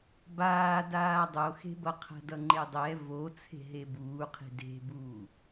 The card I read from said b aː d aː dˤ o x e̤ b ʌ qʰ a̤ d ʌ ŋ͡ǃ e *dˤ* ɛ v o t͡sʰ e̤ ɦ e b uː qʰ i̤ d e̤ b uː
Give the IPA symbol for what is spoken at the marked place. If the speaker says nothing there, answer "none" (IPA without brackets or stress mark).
dˤ